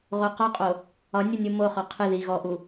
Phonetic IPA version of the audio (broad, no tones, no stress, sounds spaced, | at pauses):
ʁ o q ɔ qʼ o | ɒ nʲ o nʲ u m o χ ɔ qʰ ɨ ð i ɣ ɔ ʔ u